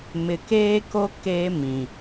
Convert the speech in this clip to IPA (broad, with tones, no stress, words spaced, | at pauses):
mɪ˨keː˦ko˦ keː˦mĩ˨